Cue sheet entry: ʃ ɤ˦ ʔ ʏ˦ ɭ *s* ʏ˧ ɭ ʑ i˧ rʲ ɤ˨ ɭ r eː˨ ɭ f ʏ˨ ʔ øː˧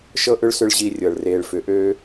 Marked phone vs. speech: correct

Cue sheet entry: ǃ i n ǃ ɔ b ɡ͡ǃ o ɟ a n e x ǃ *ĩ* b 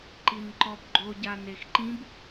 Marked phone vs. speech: correct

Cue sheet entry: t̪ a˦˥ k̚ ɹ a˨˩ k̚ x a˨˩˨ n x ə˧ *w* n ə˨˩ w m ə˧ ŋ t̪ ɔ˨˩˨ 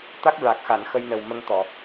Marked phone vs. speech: incorrect: j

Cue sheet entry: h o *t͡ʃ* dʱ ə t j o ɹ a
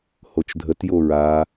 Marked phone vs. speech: correct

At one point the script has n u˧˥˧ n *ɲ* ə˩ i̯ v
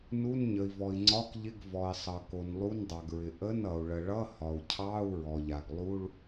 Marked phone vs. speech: correct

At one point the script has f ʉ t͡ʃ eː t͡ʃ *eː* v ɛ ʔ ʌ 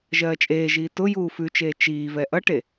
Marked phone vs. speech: incorrect: iː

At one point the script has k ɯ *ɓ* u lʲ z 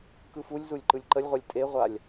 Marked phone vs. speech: incorrect: f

